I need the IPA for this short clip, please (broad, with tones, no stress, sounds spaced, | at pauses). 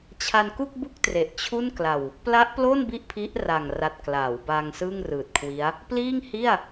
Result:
t͡ɕʰ a˧ n k u˥˩ k̚ b u˥˩ k̚ t r e˨˩ ʔ t͡ɕʰ u˥˩ n k l a˨˩ w | p l a˦˥ ʔ p l o˥˩ n b i˥˩ ʔ pʰ i˦˥ ʔ r a˨˩ ŋ r a˨˩ t̚ k l aː˩˦ w b aː˧ ŋ s ɯː˥˩ ŋ r ɯː˨˩ t̚ kʰ w i˦˥ a̯ | p l iː˥˩ ŋ h i˥˩ a̯